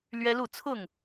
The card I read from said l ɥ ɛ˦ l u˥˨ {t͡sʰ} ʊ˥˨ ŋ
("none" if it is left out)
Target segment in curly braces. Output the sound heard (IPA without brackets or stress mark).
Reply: t͡sʰ